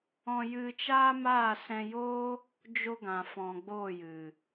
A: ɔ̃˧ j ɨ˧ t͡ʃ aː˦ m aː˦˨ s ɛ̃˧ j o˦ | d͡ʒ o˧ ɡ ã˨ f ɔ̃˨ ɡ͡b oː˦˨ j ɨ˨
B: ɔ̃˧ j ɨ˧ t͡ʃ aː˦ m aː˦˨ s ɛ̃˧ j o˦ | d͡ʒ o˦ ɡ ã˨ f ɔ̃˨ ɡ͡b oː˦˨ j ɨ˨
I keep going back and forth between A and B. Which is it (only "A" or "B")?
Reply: A